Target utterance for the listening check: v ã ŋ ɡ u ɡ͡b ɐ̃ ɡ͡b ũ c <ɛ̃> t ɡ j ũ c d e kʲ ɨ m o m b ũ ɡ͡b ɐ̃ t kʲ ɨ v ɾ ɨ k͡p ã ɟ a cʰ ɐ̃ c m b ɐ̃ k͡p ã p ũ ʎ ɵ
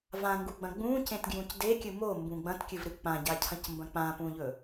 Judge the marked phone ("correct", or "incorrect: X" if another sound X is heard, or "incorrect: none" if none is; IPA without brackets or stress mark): incorrect: ẽ